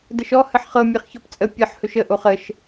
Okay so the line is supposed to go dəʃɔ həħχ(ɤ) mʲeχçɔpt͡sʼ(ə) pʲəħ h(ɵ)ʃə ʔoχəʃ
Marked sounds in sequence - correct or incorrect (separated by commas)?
correct, correct, correct